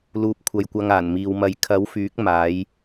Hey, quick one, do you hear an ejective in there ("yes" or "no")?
no